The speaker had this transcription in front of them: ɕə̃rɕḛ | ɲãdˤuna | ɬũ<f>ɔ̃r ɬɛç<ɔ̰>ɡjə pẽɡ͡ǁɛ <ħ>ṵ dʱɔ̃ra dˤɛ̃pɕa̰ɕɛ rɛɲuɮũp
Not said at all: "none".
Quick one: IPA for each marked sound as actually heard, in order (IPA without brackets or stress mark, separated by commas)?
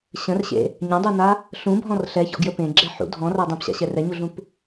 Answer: bʱ, ɔ̰, ħ